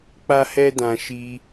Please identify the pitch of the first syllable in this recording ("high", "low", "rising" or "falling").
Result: high